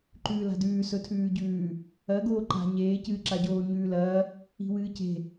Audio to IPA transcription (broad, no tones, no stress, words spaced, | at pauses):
ǃʉːla̤dʉː sɵtʰʉːɟʉː | ɐ ɡoːǃa̤ ɲeː cɨːǁaɟoː ɲʉːlɐː | i̤wɨːce̤